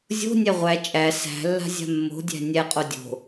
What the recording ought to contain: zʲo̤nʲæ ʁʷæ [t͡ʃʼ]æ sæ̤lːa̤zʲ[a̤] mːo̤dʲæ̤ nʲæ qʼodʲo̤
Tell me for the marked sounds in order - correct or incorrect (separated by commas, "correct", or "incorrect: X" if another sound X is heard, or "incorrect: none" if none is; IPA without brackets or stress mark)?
correct, correct